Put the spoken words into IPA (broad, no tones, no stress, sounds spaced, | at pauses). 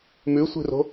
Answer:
m ʉ sʷ i̤ r o̤